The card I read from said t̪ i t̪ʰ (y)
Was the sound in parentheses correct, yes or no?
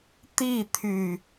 yes